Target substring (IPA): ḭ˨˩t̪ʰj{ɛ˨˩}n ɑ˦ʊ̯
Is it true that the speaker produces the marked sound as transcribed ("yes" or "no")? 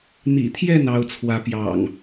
no